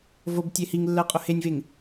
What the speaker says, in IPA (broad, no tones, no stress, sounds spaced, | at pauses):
v o b tʲ e h i ŋ lː ɜ qʼ ʊ h e nʲ v e ŋ